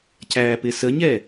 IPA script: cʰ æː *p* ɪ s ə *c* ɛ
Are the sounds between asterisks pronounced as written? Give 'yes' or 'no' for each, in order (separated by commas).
yes, no